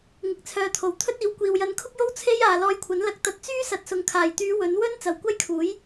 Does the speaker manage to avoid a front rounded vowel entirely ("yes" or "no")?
no